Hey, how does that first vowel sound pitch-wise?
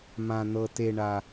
low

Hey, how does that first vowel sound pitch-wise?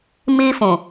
high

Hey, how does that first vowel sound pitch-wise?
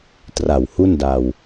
low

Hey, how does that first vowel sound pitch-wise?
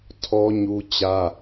high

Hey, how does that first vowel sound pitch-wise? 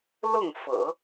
falling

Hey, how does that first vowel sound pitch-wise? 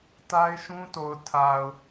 high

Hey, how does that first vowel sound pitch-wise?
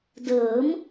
rising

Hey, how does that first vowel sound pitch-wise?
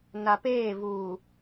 low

